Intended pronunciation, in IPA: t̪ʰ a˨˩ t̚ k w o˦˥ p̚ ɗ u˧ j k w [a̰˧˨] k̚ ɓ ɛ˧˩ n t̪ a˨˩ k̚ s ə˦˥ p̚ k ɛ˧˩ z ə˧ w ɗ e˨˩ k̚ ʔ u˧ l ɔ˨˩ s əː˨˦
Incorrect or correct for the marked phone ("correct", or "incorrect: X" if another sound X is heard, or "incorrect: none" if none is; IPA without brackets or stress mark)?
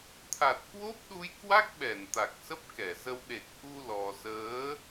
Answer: incorrect: a˦˥